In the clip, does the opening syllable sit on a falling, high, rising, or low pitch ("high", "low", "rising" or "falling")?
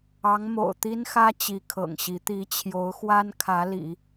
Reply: rising